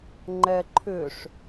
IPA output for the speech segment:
ŋ͡ǃ ɛ ǃʰ ʏ ʂ

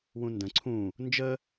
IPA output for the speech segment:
w ũ n d ə̃ ǀʰ ũ | n d͡ʒ ə

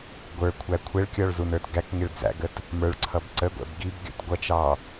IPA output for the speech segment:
ɡʷ ə˞ kʷʰ æ kʷʰ ɛ ɭ kʲ ɔ ɭ z u n ə˞ t ɡ æ k ŋ ɪ ɭ d͡z æ̰ ɡ ə t | m ə˞ ɭ ǀʰ ʌ b ǀ ə ɡʷ ɛ̰ b ɡ i b ɡʲ ɔ̰ t ɡʷ ʌ t͡ʃ ɑ

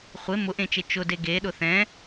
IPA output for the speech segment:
χʷ e m ʊ ʔ ẽ t͡ʃ e t͡ʃ ʊ d e ɡ e ɗ ʊ θ ɛ̃

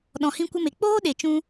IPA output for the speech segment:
ɗ ɔ̃˨ h ĩ˧ kʷ ə˧ m e˨ k͡p oː˦ ɗ e˨ t͡ʃ ũ˧

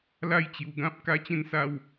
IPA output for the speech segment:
l a˦ j t͡ɕ j u˧ ɡ ã˦ p̚ k a˦ t͡ɕ ẽ˥˧ n s a˦ w

